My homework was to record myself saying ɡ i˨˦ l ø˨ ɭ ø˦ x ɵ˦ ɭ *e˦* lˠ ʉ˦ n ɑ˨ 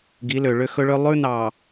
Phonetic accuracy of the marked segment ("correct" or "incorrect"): incorrect